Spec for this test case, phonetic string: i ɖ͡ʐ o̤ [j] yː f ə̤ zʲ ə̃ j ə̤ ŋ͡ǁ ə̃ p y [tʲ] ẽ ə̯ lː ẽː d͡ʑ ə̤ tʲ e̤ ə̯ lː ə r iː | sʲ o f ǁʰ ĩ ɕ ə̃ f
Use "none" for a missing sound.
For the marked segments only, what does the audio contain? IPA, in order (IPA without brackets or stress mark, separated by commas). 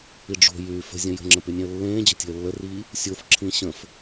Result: j, nʲ